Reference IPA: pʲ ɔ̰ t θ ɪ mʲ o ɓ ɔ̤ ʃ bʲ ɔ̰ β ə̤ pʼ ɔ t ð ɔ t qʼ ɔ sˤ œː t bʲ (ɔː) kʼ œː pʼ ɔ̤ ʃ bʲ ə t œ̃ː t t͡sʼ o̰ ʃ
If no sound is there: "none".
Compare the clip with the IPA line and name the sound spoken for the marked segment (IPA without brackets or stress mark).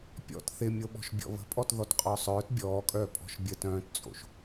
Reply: ɔː